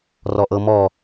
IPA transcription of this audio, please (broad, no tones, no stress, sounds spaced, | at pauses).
r ɔ ʔ ɤ m ɔ